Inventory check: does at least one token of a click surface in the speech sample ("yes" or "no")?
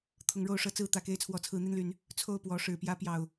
no